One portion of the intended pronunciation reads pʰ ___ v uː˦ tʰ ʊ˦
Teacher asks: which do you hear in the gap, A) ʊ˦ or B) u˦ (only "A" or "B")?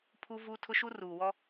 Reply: B